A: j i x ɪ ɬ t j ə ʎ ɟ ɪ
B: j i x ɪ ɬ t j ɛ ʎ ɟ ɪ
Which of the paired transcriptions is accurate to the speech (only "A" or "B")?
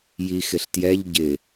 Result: B